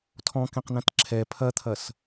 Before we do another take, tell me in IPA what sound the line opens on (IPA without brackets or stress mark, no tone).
tʰ